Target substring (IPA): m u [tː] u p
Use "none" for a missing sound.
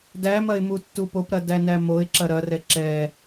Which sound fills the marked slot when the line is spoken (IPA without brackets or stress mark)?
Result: tː